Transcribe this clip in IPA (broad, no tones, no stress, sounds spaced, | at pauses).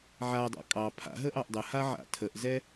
ʕ a dˤ ɑ̰ kʼ ɑ pʰ a̰ ɦ ə ʔ ɑ ʔ dˤ ə h a ʕ a̰ tʰ ə ʔ z ɛ